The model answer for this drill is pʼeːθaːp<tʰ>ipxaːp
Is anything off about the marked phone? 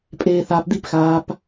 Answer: yes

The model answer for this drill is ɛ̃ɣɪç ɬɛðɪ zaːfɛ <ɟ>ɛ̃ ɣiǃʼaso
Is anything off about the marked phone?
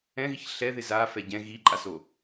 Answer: no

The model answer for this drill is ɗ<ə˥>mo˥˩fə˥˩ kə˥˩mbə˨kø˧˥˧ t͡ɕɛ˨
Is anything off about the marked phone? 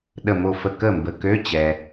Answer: yes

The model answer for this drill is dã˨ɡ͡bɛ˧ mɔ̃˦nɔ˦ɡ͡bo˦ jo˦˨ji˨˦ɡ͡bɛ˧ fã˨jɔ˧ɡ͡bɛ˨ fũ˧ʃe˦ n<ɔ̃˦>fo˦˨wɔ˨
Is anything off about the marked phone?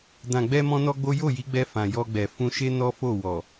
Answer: yes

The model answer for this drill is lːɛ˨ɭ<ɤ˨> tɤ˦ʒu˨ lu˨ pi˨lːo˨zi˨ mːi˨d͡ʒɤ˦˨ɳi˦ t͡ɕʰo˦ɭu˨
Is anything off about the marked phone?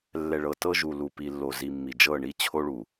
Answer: no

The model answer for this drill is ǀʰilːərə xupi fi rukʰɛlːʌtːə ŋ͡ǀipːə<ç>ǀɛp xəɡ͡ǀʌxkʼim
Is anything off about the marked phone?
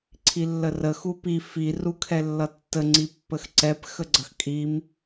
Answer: yes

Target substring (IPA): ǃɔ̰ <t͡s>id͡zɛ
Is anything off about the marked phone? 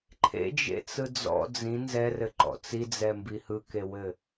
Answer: no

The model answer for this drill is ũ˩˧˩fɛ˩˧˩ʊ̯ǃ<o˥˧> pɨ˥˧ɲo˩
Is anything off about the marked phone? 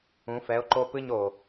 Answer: no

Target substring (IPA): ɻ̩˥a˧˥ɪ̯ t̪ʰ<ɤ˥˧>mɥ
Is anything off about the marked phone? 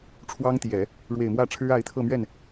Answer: no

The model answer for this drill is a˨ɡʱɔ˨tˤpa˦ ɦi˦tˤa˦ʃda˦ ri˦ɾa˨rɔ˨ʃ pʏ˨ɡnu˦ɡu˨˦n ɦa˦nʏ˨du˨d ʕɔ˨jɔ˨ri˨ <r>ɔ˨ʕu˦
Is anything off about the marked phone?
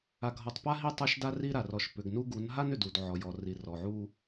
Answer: no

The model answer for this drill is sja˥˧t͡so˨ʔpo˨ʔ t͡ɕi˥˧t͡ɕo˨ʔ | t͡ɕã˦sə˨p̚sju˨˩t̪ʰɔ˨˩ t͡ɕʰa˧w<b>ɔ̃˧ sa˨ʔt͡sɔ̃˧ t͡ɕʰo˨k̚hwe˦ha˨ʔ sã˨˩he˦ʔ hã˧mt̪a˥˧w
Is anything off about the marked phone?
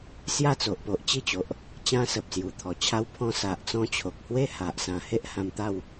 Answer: yes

